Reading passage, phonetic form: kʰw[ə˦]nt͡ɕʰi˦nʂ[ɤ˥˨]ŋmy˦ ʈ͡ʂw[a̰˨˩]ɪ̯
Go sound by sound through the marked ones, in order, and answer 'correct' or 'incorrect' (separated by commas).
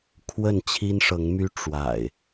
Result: incorrect, incorrect, correct